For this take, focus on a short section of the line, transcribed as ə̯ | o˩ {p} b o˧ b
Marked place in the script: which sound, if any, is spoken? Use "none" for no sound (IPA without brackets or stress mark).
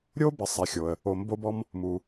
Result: m